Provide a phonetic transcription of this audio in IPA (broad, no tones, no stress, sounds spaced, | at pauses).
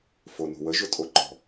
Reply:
f o n o̤ w ə ʒ ʊ tʼ o ǃ ɔ̤